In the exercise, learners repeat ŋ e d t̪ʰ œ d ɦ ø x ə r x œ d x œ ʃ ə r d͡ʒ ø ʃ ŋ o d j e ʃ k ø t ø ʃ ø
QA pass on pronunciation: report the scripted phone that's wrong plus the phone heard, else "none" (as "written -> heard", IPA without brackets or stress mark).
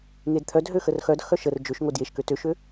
none